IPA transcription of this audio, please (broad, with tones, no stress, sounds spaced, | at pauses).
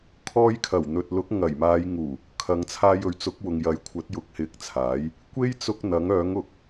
kʰ ɔː˧ j kʰ ɐ˨˩ w n̪ ɵ˨ t̚ l ʊ˨˥ k̚ ŋ ɐ˨˩ j m aː˨˧ j ŋ uː˨˩ | kʰ ɐ˨ ŋ t͡sʰ aː˧ j ɵ˨ ɥ t͡s ʊ˨˥ k̚ w ʊ˨ ŋ j ɐ˨˥ j kʷʰ ɐ˨˥ t̚ j ʊ˨˥ k̚ h ɪ˨˥ k̚ t͡sʰ aː˨˥ j | kʷ e˥ j t͡s ʊ˧ k̚ n̪ ɐ˨˥ ŋ œː˨˥ ŋ ʊ˨˥ k̚